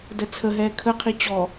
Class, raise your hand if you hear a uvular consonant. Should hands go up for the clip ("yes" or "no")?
yes